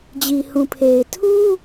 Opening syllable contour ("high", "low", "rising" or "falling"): low